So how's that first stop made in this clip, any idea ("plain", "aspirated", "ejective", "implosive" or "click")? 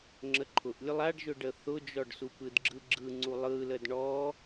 click